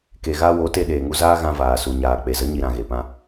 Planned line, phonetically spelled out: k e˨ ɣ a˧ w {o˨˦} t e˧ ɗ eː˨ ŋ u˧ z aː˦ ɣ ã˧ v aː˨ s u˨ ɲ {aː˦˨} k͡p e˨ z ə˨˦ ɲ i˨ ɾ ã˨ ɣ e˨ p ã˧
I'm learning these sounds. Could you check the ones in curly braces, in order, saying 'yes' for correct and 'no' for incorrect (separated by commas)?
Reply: yes, no